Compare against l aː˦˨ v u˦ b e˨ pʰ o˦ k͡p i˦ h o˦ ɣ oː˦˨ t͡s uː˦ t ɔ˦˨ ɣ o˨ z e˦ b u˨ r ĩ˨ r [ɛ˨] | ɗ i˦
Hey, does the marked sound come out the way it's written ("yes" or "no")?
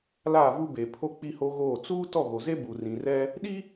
no